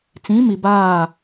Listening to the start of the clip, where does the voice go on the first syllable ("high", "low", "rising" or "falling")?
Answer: rising